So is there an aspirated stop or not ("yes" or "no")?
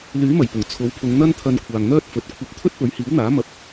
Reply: yes